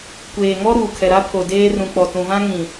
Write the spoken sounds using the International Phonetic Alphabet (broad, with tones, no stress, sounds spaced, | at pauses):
kʷ eː˨ ŋ ɔ˦ ɾ uː˨ kʰ ɛ˨ ɾ a˦ pʰ o˨ d eː˦ r ũ˨ k͡p ɔ˨ t ũ˨ v ã˦ ŋ ĩ˨